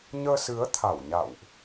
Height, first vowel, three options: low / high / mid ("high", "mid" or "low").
mid